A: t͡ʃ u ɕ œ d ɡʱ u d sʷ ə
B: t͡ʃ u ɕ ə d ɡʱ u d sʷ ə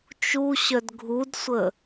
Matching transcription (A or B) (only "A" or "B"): A